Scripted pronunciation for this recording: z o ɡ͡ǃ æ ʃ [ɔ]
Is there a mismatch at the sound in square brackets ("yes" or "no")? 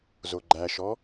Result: no